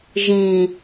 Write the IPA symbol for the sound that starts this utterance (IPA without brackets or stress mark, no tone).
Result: ʒ